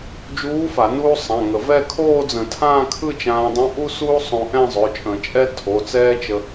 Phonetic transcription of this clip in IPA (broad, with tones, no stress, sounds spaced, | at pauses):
d͡ʒ uː˧˥ f a˨˩˦ n uː˥ sˤ ã˩˧˩ ŋ ə˨˩˦ v ɛ˥˧ kʰ oː˥˧ d͡z ə̃˨˩˦ tʰ ãː˥˧ kʰ ɯ˥˧ t͡ʃ ãː˧ dˤ ũ˧˥ ʔ u˥ s uː˥ sˤ õ˧ ʔ ɛ̃˥˧ zˤ ø˩˧˩ t͡ʃʼ ə̃˨˩˦ t͡ʃʼ ɛ˥ tʰ o˩˧˩ t͡s ɛː˥ t͡ʃ ə˧